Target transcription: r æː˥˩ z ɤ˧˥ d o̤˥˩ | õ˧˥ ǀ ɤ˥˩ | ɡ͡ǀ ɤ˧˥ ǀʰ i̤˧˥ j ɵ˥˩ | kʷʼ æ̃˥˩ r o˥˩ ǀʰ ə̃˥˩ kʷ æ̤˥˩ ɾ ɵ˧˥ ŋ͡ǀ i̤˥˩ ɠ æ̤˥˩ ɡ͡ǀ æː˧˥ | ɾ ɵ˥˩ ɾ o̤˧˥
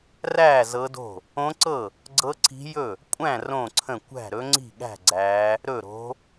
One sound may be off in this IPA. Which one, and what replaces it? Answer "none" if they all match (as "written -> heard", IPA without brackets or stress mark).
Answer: o˥˩ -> õ˥˩